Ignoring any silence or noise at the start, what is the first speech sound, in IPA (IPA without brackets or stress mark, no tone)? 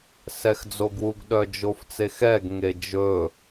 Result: s